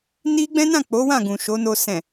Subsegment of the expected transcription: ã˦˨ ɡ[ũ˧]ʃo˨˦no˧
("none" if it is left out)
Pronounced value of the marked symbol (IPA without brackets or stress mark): ũ˨